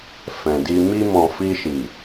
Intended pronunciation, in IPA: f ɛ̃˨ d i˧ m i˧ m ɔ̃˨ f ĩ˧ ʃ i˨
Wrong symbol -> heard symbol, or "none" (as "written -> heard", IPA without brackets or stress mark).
ĩ˧ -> i˧